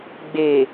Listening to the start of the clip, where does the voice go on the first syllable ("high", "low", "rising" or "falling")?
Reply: low